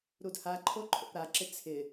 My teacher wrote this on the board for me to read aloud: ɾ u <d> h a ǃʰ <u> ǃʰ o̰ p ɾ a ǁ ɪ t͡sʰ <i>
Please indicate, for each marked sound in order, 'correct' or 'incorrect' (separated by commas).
correct, incorrect, incorrect